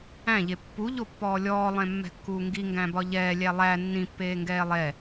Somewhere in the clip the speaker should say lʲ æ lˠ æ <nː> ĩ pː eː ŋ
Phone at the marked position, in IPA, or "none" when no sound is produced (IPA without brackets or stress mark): nː